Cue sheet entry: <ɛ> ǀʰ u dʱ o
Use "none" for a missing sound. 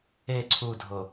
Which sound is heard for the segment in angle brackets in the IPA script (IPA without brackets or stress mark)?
e